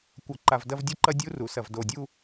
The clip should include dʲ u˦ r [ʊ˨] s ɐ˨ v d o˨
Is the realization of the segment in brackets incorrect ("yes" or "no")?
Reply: yes